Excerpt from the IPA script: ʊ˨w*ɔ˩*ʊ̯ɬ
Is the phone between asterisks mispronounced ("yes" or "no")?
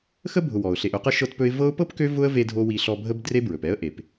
no